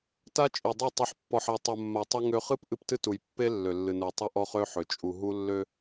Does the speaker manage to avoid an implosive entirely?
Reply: yes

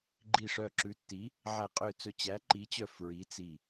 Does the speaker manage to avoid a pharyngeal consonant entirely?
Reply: no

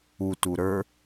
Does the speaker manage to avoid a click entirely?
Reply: yes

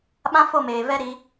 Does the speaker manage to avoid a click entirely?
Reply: yes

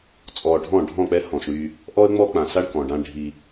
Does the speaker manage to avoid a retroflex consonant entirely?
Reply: no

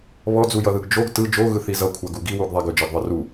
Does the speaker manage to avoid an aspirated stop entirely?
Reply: no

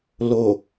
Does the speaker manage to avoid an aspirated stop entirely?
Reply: yes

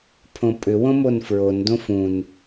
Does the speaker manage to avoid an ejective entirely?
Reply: no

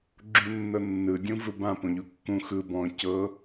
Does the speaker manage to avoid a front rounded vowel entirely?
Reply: yes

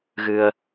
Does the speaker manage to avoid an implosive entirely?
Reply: yes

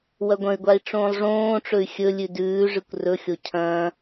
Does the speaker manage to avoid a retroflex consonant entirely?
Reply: no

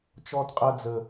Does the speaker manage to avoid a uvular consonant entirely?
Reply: no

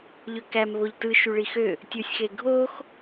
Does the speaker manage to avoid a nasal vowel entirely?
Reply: yes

